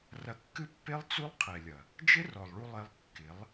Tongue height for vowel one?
low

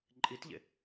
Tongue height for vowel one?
high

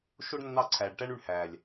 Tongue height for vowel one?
mid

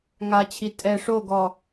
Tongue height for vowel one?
low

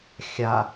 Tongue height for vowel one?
low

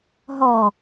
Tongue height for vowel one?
mid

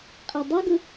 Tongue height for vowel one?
mid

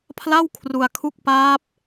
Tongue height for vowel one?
low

